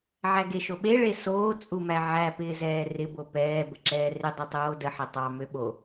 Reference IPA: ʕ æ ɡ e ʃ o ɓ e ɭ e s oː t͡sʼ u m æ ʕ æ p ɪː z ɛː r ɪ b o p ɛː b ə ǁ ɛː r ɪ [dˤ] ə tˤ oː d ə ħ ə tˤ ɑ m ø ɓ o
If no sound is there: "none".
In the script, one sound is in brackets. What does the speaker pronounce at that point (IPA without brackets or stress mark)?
dˤ